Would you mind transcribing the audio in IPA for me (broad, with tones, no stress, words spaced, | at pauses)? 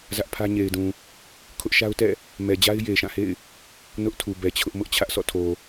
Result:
zä˦ʔpʰä˦ ɲe˨ɪ̯dũ˨ | kʰʊ˦ʔʃa˦ʊ̯tɛ̰˦˨ | mɛ˨d͡ʑa˦ɪ̯ je˨ʃã˦˨hḛ˦˨ɪ̯ | nʊ˦ʔtʰu˨ bɛ˨t͡ɕʰʊ˦ʔ mʊ˦ʔt͡ɕʰä˦ʔsɔ̰˦˨tʰo˨